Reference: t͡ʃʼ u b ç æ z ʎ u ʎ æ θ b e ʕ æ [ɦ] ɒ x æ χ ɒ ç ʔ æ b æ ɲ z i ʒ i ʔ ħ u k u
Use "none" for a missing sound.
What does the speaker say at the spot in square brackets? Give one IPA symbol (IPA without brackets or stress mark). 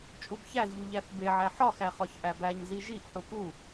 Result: ħ